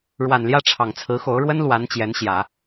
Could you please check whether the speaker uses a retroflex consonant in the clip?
yes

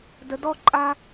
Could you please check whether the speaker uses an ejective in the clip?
yes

